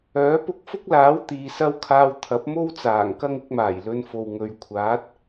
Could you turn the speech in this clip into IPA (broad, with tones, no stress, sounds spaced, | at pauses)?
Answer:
œː˨˥ p ʊ˧ k̚ f ʊ˥ k̚ l aː˨˥ w t̪ iː˨ s ɐ˥ w kʰ aː˧ w t̪ʰ ɐ˨˥ p̚ m o˥ w t͡s aː˨˩ ŋ k ɐ˥ ŋ ɪ˨˥ k̚ m aː˨˩ j l ɵ˧ n f o˨ w ŋ ɵ˨˧ ɥ kʷʰ aː˨˥ t̚